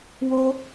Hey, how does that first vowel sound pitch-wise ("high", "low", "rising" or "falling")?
high